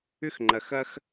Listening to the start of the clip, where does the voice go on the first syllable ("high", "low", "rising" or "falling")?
high